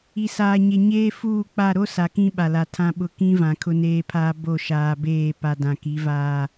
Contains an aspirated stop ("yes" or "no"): yes